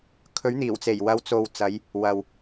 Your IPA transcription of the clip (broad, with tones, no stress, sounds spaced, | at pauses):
kʰ ɵ˨˥ ɥ n̪ iː˨˩ w t͡s e˨˩ j w ɐ˨˧ w t͡s o˨ w t͡s ɐ˨˧ j | w ɐ˨ w